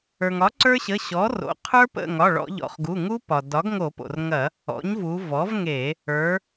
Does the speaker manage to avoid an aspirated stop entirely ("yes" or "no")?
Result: no